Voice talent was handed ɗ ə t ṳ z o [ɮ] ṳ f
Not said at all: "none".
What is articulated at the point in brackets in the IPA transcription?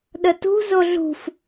ɮ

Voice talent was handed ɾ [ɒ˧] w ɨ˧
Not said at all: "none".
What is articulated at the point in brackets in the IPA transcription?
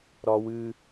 ɒ˧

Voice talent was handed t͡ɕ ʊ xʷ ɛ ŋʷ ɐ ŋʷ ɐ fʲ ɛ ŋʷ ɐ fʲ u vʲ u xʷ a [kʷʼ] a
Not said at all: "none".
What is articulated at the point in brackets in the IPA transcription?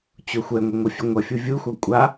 kʷʼ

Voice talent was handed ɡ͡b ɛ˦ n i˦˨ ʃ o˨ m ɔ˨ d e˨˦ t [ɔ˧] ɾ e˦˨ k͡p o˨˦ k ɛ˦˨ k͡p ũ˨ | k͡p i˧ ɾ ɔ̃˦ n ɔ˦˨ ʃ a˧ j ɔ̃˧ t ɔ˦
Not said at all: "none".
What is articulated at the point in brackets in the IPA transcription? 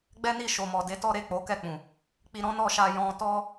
ɔ˦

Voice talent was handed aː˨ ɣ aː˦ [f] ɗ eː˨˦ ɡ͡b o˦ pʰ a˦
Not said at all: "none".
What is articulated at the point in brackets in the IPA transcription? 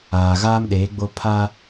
m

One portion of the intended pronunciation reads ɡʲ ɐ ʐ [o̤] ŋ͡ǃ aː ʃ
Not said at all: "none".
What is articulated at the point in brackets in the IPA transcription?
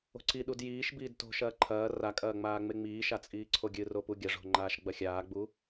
o̤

